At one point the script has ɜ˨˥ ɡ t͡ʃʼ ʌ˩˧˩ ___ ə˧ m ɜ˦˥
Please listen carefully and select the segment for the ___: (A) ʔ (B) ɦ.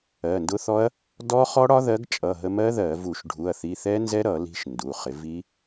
B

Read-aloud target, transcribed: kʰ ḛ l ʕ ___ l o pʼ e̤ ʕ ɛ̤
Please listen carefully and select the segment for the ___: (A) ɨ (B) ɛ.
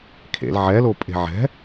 B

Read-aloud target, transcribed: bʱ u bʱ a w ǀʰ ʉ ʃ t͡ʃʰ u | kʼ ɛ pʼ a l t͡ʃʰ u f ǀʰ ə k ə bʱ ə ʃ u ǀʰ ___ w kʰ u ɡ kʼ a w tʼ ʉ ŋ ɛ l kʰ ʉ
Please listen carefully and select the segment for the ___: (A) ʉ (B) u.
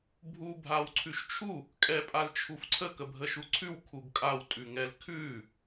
A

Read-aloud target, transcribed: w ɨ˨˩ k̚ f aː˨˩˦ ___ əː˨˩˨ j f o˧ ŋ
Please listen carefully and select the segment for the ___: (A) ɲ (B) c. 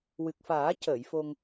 B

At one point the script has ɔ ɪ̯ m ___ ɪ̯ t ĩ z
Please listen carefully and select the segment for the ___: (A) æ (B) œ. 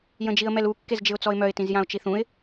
B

